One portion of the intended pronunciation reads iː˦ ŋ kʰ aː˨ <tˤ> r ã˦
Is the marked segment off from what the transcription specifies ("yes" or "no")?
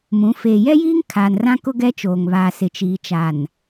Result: yes